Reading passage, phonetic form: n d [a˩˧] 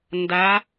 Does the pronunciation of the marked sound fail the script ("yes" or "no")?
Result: no